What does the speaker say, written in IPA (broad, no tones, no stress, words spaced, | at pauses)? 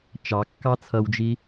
t͡ʃɑ kːɑt͡sʰʌwd͡ʒi